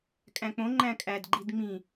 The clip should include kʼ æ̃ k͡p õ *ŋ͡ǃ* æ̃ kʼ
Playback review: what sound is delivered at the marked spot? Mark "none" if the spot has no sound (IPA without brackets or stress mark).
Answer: ŋ͡ǃ